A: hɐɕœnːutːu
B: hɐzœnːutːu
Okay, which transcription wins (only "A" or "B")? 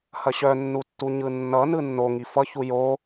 A